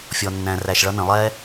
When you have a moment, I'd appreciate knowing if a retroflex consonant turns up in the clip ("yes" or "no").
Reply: yes